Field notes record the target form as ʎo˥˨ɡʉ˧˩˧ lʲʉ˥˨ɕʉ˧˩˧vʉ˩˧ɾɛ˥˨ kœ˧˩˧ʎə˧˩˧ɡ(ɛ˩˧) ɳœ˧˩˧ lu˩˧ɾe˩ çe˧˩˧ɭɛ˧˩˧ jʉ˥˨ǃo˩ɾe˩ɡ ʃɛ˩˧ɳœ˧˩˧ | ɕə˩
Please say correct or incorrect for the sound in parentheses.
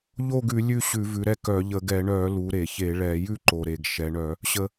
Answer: incorrect